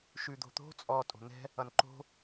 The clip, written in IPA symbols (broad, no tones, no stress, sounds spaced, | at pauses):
ʃ ʉ d̪ o̤ t̪ o̤ t͡sʼ ɔ tʼ o̤ n̪ ɛ̤ | ʌ n ǃ o̤